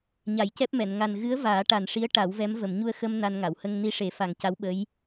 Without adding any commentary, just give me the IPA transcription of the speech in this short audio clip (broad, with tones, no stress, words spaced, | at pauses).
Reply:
ɲa˨˩˦jcɛ˦˥p̚mɛ˨˩˨n ŋa˨˩nɣɨ˧˥ə̯ vaː˨˩˦ʈa˨˩nʂi˧˥ə̯ ʈa˨˩˦wvɛ˧˥m və˨˩˨mɲu˧ə̯xə˧m na˧nŋa˨˩˨w hə˧ŋ ni˧ʂe˨˩˦fa˨˩ŋca˧˥w ɓə˧˥j